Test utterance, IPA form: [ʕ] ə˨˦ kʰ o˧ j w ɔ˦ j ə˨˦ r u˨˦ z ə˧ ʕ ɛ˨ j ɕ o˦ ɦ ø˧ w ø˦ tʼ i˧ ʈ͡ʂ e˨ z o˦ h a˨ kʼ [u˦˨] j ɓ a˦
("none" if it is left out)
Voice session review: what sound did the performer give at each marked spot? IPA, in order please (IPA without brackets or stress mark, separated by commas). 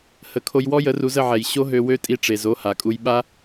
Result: h, u˧